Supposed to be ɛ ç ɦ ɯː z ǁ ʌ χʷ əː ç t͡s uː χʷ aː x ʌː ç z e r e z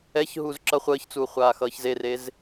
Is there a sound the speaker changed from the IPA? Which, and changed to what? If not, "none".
ɯː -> uː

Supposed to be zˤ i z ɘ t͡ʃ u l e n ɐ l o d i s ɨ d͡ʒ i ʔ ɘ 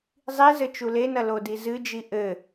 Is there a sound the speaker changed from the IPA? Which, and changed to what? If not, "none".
s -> z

